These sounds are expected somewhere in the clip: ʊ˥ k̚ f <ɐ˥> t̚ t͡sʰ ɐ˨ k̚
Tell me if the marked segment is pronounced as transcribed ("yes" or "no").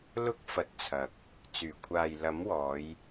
no